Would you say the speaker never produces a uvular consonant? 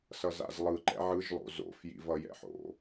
yes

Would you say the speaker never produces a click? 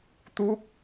yes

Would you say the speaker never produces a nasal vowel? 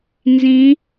no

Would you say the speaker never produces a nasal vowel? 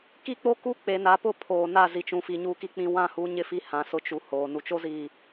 no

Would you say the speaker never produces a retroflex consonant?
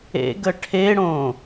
no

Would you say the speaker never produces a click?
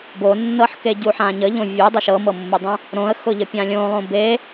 yes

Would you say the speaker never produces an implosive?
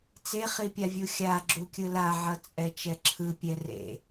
yes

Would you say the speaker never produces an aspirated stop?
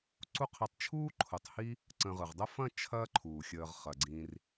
no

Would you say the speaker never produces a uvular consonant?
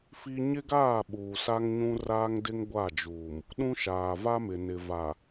yes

